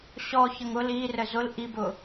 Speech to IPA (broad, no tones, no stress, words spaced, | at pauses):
ɕɔçəŋ ʊl irə zʊl ʔibʊ